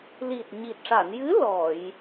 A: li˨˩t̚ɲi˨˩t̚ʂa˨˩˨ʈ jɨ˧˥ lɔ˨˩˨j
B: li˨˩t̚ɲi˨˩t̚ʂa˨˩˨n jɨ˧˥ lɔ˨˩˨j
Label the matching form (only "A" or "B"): B